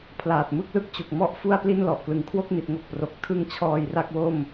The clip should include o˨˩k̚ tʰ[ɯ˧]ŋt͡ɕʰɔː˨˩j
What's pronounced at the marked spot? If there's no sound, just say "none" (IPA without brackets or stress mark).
ɯ˧